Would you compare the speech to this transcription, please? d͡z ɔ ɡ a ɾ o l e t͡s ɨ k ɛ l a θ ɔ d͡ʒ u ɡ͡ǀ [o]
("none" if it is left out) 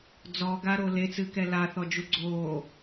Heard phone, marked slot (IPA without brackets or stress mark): oː